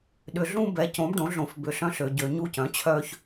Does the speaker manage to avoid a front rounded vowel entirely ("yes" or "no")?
no